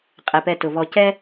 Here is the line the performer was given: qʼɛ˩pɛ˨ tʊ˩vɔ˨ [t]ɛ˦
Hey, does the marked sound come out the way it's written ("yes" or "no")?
no